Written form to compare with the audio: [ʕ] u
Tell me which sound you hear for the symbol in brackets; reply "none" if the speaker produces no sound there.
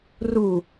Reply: r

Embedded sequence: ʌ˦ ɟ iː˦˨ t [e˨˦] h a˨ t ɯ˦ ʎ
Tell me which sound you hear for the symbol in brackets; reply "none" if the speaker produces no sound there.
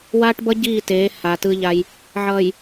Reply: eː˨˦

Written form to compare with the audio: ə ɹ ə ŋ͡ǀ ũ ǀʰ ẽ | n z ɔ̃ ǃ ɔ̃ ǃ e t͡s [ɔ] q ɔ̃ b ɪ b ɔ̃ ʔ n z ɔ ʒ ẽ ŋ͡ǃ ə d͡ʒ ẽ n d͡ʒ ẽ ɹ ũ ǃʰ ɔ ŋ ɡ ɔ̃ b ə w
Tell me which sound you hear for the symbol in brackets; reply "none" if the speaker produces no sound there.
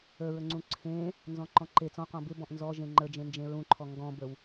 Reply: ɔ̃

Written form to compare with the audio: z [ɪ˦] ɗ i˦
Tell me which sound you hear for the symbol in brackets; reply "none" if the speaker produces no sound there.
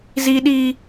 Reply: i˦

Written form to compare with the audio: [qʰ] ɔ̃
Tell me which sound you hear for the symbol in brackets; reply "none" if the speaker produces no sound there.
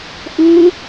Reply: ʔ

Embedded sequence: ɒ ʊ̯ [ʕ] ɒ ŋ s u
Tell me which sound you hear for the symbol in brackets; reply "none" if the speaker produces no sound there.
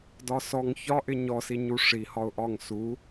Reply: ʔ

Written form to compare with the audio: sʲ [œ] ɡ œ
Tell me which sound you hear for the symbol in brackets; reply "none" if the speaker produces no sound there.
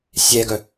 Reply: ɛ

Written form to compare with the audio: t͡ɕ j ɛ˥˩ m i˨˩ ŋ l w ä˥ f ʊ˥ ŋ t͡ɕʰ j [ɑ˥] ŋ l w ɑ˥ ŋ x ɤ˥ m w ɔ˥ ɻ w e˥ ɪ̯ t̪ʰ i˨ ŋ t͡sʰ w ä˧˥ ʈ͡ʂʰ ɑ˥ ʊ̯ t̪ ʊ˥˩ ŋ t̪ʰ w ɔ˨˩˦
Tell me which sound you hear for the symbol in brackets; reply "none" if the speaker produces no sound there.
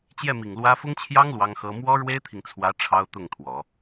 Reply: ɑ˥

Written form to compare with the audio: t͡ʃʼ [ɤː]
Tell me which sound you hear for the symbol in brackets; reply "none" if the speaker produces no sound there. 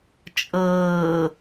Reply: ɤː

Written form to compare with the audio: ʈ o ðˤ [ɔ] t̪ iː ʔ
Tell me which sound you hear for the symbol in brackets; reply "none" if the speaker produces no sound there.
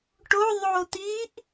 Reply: o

